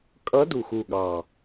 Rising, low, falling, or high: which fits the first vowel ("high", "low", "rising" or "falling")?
rising